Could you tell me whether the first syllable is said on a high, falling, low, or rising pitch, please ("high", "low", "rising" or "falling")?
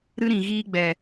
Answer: high